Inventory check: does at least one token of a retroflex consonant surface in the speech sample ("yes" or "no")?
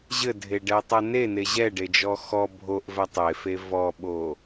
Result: yes